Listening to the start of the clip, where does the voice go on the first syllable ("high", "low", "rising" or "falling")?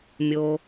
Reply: low